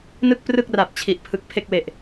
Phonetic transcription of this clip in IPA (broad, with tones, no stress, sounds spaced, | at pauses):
n ɯ˥˩ k̚ p r ɯ˥˩ k̚ r a˨˩ p̚ t͡ɕʰ i˨˩ ʔ pʰ ɯ˨˩ k̚ pʰ e˥˩ k̚ w e˨˩ ʔ